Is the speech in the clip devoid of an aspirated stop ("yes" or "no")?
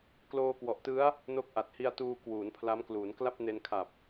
no